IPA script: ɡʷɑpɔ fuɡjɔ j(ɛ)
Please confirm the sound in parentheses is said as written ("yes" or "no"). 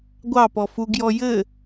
no